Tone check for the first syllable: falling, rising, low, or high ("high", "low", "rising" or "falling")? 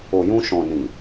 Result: low